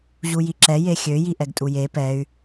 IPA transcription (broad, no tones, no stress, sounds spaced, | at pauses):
ʑ u j i ǁ ɛ j e xʲ ø j i ʔ ɛ ɡ tʼ u j e p ɛ y̯